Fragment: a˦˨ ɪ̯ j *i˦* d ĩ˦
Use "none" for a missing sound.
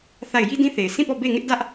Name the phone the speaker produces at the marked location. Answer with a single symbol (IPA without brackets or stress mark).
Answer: i˦